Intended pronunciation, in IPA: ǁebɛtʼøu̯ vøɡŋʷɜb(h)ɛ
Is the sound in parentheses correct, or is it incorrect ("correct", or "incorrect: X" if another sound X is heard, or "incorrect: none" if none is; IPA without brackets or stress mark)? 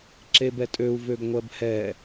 correct